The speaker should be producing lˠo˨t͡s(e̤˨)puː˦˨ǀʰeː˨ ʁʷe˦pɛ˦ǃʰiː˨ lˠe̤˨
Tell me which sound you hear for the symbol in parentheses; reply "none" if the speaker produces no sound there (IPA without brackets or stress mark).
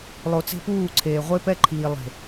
e̤˦